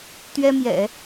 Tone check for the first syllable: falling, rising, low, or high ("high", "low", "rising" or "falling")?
high